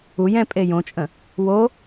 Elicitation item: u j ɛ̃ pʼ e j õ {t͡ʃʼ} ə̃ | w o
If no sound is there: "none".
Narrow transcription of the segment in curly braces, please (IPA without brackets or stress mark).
t͡ʃʼ